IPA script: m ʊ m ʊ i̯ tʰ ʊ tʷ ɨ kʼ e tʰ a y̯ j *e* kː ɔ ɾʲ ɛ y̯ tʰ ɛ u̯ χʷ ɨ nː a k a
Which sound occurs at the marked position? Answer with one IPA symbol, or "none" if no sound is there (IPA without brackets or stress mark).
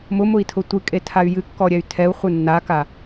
ɨ